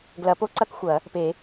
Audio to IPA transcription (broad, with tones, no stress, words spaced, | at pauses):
ɡlɐ˨˩˦po˥˧ǀɐ˥˧k xʷɐ˨˩˦ | pe˨˩˦